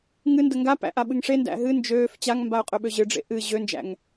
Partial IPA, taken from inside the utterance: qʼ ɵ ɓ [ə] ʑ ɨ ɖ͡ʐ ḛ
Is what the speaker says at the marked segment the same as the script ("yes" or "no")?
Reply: no